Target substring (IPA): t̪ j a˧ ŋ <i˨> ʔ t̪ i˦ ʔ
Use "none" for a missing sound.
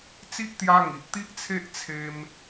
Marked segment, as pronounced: i˨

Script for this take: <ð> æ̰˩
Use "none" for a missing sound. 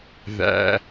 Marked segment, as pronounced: ð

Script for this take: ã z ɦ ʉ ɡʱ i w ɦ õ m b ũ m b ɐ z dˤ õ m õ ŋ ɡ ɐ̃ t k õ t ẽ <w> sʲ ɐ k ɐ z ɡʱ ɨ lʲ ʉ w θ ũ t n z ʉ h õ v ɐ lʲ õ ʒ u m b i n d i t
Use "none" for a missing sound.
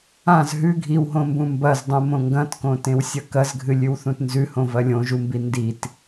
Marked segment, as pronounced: w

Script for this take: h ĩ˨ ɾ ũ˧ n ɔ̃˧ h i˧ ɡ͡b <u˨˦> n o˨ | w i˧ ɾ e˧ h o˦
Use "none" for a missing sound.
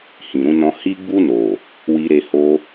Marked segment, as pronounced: u˧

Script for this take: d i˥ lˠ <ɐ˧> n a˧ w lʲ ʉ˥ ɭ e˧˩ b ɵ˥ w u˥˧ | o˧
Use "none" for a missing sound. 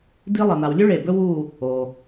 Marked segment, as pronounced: ɐ˧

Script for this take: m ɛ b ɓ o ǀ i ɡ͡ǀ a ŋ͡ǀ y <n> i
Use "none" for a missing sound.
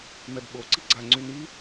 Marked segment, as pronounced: n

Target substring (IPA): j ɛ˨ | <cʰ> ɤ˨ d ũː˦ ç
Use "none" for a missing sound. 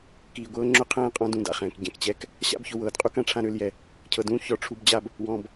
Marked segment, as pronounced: cʰ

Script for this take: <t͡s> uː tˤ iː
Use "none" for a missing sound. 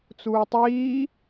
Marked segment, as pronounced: t͡s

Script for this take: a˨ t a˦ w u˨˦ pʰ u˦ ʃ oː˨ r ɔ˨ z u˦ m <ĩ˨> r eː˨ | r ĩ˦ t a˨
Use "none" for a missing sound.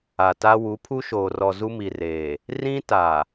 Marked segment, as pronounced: i˨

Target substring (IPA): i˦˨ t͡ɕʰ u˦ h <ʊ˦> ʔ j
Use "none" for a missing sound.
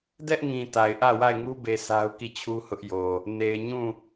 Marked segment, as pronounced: ʊ˦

